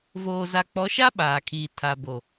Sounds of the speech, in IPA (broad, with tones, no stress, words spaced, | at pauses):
voː˨za˨ k͡pɔ˨˦ʃa˦ ɓaː˨kʰiː˨ tʰa˨bo˨